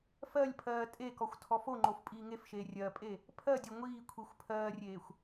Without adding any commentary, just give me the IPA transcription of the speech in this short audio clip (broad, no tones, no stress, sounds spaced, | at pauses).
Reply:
f ɜ lʲ pʰ ɜː tʼ e k ɔ xʷ tʰ ɔ f o ŋ͡ǃ o f pʼ iː ŋ e f ʃ eː rʲ ɜ pʼ e | pʰ ɜ dʲ o ŋʷ iː kʷʰ i xʷ pʰ ɜː rʲ eː xʷ